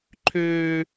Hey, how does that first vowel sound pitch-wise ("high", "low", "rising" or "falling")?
high